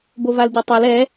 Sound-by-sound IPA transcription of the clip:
b o v a l ɟ œ tˤ e l ɛ

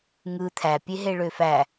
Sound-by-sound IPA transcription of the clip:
ŋ ɯ t̪ʰ æ pʲ e ɦ e ɭ ø f æ

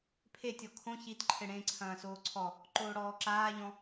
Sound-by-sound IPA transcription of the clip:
pʰ e tʲ ɔ kʰ õ ç i t ǃʰ ɘ ɽ ẽ ǀʰ ɐ̃ː s oː ǀʰ ɔ | ǃ oː ɽ ɔː ǁ aː ʎ ɔ̃

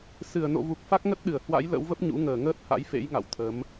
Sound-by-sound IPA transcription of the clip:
s ɨ˧˩ ə̯ n o̰˧˨ v u˨˩ k̚ f a˦˥ k̚ ŋ ə˦˥ t̚ ɗ ɨ˧˩ ə̯ h w a̰˧˥ j l ə̰˧˥ w v ə˦˥ p̚ ɲ ṵ˧˥ ŋ əː˧˩ ŋ əː˦˥ t̚ h a̰˧˥ j f ḛ˧˥ j ŋ a̰˧˨ w t̪ʰ ə˨˦ m

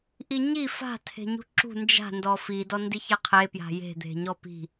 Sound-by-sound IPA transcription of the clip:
ʔ i ɲ i f a̤ tʰ e̤ ɲ ṳ ǁ ṳ n d͡ʒ a̤ n d ɔ f i d ɔ n d i ç e qʰ e p j a̤ j e̤ d̪ e̤ ɲ ɔ p i̤

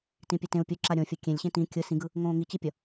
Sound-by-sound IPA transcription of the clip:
t ĩ pʲ ɛ t ẽ u̯ pʲ u ǁ a ɾʲ õ fʲ ʌ kʲ ẽ lʲ ɕ ẽ t ĩ kʲ ɯ s ĩ ɡ ɯ | ŋ õː ŋ i t͡ɕ i pʲ ʌ

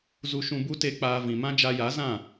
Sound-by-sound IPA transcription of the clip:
z u˧ ʃ ũ˧ b u˦ t e˧ k͡p aː˧ v ĩ˨ m ã˦ d͡ʒ a˧ j a˨˦ z ã˦˨

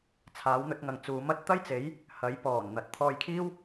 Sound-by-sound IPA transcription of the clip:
t͡sʰ aː˨˥ w n̪ ɵ˨˥ t̚ ŋ ɐ˨ ŋ t͡s uː˨˥ m ɐ˨˥ t̚ t̪ ɐ˥ j t͡s e˨˥ j | h ɐ˨˥ j p ɔː˨˩ n n̪ ɐ˨ t̚ t̪ʰ ɔː˧ j kʰ iː˥ w

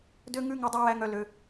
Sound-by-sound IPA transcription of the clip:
d ø˦ ŋ ʉ˦ ŋ u˧ dˤ u˧ w æ˧ ŋ œ˧ l ø˧

